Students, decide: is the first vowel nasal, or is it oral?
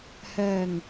oral